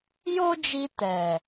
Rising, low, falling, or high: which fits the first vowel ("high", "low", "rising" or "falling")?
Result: high